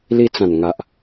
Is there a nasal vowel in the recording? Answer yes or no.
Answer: yes